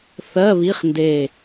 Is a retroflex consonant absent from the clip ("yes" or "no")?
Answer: yes